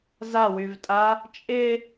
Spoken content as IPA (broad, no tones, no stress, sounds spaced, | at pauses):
z a w y v tʼ a | t͡ʃʼ ɪ